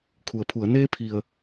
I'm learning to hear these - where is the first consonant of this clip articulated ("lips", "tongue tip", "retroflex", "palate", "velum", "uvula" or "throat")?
velum